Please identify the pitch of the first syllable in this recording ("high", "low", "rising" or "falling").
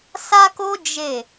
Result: high